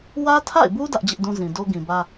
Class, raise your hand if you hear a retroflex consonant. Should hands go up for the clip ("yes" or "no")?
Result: no